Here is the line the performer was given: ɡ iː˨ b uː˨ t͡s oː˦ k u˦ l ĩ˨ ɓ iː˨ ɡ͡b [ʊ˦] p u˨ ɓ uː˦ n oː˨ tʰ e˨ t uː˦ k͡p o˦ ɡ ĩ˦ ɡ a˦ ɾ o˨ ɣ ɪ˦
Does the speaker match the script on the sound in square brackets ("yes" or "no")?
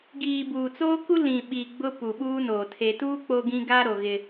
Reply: yes